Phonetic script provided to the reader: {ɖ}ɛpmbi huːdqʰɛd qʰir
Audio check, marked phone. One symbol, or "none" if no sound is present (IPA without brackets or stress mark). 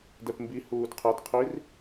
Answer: d